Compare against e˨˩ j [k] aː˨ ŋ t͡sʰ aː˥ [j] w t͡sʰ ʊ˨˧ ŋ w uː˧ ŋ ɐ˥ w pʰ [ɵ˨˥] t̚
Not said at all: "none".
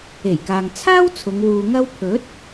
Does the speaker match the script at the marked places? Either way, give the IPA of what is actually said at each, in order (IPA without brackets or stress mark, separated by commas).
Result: k, none, ɵ˨˥